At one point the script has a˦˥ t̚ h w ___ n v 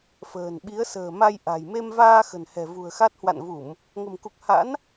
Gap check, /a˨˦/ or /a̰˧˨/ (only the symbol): a̰˧˨